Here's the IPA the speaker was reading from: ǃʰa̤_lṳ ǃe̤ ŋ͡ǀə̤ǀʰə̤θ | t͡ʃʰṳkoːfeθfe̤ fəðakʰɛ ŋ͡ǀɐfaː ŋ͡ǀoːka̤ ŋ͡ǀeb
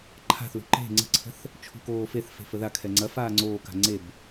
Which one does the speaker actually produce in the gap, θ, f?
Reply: θ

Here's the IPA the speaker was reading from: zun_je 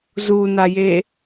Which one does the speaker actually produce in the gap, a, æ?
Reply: a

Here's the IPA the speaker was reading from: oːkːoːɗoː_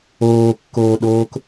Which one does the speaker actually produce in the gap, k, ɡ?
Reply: k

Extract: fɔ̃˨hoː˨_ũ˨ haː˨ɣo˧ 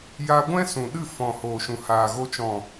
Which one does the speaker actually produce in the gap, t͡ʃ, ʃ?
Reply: ʃ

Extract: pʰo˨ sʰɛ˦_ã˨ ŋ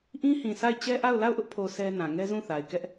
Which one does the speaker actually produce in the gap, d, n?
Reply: n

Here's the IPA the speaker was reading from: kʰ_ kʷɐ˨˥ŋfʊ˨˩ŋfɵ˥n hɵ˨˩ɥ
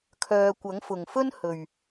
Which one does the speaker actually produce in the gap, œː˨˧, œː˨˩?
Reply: œː˨˧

